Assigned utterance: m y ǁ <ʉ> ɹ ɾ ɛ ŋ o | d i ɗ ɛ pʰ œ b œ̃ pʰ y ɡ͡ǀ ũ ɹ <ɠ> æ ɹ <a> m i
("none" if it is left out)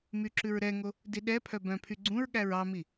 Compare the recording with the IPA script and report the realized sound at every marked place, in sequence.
ʉ, ɠ, ɑ

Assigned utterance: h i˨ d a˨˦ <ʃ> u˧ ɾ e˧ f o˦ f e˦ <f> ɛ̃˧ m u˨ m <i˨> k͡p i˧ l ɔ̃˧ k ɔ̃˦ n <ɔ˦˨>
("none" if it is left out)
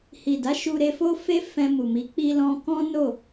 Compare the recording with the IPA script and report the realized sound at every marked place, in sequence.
ʃ, f, i˨˦, o˦˨

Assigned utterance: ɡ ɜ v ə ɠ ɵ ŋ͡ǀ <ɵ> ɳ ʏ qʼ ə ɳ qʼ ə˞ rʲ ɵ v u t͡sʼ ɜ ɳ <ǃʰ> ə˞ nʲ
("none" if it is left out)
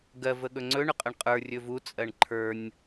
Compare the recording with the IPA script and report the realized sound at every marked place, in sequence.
ɵ, ǃʰ

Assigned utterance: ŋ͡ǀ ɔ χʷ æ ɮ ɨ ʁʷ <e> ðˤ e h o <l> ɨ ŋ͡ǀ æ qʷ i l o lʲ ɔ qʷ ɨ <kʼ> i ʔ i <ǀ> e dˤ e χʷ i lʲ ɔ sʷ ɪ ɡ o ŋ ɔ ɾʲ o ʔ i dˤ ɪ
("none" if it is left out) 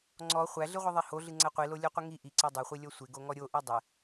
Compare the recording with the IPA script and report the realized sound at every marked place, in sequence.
i, ɮ, ŋ, ǀ

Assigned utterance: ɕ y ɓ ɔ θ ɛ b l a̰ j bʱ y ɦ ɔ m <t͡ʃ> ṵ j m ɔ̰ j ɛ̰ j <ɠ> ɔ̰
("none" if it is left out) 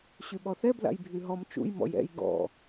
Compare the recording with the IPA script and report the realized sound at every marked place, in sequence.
t͡ʃ, ɡ

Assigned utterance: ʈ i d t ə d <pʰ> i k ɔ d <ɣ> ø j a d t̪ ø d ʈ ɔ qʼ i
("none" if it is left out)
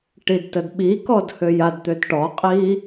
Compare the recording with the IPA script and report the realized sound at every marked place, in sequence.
ɓ, h

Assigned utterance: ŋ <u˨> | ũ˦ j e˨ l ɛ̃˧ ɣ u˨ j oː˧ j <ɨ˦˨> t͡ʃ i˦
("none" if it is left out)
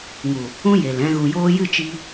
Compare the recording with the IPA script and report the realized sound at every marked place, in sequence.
u˨, ɨ˦˨

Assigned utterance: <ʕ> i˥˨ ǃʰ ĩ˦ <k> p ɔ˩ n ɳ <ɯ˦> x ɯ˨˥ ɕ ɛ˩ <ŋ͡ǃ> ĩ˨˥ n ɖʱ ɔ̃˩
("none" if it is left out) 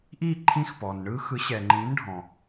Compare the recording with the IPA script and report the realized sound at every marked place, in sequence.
ʔ, x, ɯ˦, ŋ͡ǃ

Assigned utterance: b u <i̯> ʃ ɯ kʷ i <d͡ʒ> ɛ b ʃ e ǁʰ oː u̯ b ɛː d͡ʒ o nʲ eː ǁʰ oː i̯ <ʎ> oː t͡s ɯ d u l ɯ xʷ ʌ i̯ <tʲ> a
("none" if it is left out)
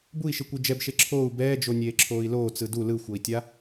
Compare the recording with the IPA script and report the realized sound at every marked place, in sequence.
i̯, d͡ʒ, l, tʲ

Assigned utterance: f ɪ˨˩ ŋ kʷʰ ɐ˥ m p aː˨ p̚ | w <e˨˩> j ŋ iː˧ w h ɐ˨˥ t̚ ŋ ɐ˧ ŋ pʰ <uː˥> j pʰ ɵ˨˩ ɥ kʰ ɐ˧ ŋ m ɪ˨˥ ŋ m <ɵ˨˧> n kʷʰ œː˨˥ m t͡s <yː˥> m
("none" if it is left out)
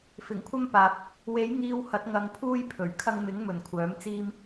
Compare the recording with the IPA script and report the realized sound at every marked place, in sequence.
e˨˥, uː˥, ɵ˨˩, iː˥

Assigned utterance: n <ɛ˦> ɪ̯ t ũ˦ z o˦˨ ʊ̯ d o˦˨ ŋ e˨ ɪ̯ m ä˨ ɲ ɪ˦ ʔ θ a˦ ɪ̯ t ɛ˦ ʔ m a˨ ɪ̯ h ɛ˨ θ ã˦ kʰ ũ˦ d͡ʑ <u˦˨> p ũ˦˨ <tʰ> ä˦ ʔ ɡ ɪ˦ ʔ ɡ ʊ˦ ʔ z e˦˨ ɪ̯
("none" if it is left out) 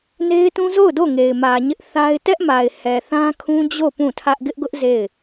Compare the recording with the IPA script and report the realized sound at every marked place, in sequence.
e˦, o˦˨, tʰ

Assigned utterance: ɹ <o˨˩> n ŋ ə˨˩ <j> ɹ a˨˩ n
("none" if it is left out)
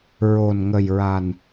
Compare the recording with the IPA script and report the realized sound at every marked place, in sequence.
o˨˩, j

